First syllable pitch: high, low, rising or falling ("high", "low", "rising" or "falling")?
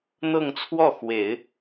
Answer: falling